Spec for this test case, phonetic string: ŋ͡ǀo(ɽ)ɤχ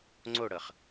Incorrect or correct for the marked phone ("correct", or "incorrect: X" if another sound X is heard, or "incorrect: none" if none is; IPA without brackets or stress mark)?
correct